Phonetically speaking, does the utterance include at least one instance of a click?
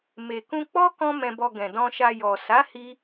no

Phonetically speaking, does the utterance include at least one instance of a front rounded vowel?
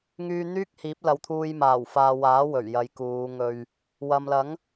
yes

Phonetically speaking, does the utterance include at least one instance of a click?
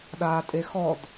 no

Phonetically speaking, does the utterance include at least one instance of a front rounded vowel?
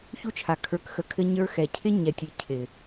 no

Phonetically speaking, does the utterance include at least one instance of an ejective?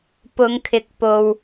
no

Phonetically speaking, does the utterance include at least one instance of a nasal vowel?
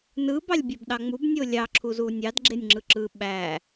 no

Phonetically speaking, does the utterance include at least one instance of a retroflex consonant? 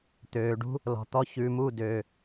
yes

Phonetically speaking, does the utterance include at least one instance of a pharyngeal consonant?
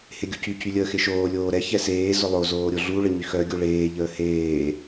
no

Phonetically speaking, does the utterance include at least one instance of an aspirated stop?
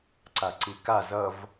no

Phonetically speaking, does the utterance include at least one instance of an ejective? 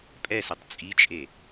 yes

